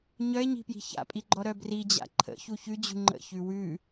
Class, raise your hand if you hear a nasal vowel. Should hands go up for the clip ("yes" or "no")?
no